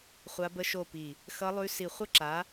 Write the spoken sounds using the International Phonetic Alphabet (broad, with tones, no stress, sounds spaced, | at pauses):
χʷ a˦˥ b ə˦˥ ʃ o˥˨ p i˧˩ | x ʌ˦˥ lˠ ʉ˦˥ s i˧˩ χʷ ə˦˥ ǁ a˨˦